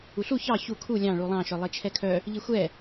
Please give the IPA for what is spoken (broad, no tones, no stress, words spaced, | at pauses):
uɬu çɑ çu kʰu lʲɑ̃ ɭulˠɑ̃ ʃœlˠet͡ʃʰɛkʰœ | ʎixʷɛ